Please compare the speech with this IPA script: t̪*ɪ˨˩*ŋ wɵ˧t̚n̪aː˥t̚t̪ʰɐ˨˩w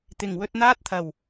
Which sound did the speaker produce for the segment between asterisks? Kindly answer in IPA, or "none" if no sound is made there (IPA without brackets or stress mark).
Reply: ɪ˨˩